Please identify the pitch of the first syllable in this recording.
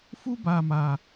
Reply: high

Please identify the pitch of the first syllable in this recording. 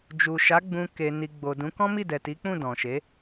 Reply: low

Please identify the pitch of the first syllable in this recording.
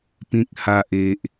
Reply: low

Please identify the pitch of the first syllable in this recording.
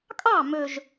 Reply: falling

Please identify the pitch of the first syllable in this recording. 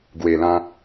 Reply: low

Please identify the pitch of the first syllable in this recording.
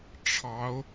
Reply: rising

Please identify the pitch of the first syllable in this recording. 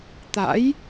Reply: rising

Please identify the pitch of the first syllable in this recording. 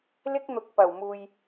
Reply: high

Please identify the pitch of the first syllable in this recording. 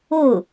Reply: falling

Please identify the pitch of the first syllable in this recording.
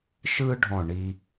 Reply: high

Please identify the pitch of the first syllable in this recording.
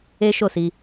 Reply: high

